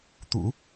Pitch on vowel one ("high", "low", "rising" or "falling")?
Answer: low